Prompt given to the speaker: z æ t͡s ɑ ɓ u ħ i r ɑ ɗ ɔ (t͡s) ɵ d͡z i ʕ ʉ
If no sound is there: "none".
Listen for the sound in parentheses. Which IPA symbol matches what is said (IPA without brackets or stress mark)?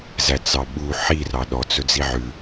t͡s